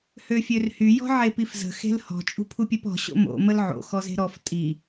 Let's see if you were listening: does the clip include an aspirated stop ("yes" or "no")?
yes